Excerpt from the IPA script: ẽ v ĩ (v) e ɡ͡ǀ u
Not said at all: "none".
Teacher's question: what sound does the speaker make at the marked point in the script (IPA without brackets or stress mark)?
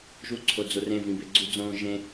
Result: b